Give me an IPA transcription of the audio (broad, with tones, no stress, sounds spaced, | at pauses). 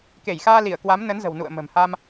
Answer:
k e˧˩ j x aː˧ l i˧˩ ə̯ k w a˨˦ m n ə˨˦ n z ə̤˨˩ w n ṵ˧˨ ə̯ m ə̤˨˩ m h a˧ m